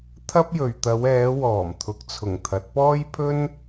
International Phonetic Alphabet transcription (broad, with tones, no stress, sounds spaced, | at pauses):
t̪ʰ ɐ˥ p̚ j ɵ˨ ɥ t̪ ɐ˨˧ w ɛː˨˧ w ɔː˨˩ m t̪ʰ ʊ˨ k̚ t͡sʰ ʊ˨˩ ŋ t̪ʰ ɐ˨˥ t̚ p ɔː˥ j pʰ ɵ˥ n